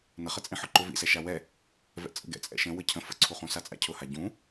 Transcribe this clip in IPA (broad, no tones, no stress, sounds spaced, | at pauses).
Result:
n ə χ ə t͡sʼ ĩ ħ ʊ ǃ ʊ v ḭ s ɛ ʃ a w ɛ | v ɛ̰ t͡sʼ ə̰ ɡ ɛ̰ t͡sʼ ɛ̰ ʃ ə̃ w ə cʰ ə̃ f ə̰ ǀʰ u χ ũ s a t͡sʼ a̰ cʰ ʊ h a ɟ ũ